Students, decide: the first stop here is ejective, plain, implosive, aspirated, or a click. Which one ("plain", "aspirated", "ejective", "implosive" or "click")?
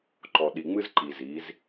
click